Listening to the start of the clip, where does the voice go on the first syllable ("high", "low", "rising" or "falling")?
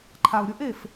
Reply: low